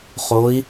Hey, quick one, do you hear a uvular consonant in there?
yes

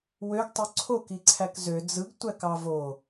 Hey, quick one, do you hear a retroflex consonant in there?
no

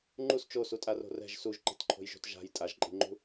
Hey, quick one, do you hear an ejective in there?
yes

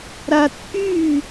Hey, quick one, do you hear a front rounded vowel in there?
yes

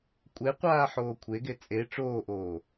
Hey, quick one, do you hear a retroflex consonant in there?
yes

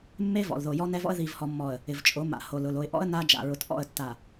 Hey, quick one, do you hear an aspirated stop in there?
no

